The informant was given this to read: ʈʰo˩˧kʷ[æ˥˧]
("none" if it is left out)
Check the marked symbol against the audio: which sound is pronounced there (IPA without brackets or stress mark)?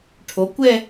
ɛ˥˧